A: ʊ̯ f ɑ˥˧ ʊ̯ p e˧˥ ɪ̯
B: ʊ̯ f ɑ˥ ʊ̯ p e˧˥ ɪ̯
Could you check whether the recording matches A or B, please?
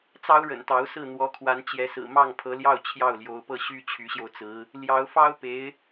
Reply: B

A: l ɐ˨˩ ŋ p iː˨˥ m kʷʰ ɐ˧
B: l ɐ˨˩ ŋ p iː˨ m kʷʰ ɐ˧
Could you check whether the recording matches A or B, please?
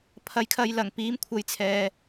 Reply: A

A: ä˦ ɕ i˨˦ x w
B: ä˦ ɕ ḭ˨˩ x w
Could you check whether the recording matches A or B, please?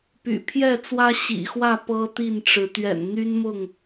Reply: B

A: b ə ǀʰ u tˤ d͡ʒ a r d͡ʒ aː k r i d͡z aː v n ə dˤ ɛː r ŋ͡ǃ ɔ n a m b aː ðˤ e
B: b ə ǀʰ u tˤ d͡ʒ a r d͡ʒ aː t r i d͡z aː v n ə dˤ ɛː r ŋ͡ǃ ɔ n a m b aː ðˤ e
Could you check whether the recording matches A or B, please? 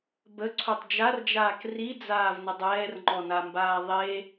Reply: A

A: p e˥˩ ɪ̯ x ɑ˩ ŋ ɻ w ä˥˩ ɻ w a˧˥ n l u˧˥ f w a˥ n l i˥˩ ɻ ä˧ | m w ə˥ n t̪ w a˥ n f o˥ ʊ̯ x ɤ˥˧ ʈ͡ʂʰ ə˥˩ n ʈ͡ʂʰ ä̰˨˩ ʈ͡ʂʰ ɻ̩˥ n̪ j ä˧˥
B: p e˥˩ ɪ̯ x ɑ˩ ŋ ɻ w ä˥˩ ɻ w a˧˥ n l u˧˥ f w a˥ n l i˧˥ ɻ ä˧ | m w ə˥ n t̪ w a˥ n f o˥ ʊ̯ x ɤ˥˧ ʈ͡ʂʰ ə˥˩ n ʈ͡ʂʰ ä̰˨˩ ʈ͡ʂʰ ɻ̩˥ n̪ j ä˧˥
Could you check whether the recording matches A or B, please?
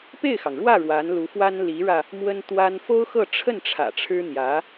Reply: B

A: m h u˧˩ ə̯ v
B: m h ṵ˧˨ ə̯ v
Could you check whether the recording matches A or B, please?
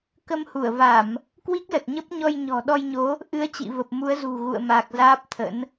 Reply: A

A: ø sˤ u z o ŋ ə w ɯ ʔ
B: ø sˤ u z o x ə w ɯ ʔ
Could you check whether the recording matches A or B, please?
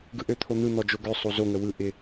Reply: A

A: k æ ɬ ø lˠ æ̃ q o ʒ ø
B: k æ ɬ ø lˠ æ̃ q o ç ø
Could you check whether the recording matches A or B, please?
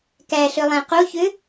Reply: B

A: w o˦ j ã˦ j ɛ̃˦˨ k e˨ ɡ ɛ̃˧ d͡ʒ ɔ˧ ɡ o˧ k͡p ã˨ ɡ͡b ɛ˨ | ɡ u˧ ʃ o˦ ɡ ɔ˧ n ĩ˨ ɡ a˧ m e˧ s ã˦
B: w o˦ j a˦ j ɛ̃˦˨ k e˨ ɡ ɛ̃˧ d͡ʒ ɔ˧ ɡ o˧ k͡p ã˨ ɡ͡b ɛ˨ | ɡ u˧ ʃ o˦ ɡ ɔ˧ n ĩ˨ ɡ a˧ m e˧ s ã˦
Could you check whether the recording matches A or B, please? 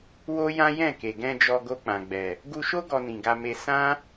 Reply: A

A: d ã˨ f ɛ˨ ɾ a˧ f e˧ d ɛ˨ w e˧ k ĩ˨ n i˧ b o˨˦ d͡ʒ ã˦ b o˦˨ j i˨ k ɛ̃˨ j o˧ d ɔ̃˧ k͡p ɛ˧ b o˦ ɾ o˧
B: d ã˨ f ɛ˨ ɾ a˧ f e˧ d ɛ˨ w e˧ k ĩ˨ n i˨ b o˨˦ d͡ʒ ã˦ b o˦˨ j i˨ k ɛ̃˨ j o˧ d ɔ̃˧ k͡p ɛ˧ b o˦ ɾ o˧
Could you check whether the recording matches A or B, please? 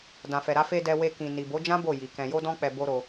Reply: B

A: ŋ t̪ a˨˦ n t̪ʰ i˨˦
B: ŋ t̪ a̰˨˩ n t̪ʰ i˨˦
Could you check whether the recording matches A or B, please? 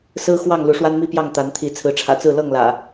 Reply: A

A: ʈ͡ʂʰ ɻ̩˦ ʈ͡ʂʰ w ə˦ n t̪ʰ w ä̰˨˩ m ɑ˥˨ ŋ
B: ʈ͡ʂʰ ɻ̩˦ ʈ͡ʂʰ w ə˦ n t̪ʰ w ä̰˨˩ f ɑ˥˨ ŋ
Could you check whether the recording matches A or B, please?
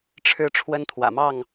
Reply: A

